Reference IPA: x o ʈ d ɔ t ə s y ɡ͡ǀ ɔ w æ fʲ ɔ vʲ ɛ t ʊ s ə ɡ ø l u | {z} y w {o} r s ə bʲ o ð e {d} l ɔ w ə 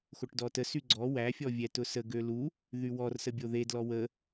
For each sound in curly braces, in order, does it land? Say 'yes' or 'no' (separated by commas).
no, no, yes